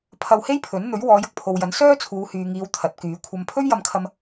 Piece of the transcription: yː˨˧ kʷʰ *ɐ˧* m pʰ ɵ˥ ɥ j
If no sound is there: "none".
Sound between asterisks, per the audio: ɐ˧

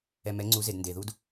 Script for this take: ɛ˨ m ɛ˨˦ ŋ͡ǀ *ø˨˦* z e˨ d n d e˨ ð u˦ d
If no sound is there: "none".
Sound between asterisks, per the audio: u˨˦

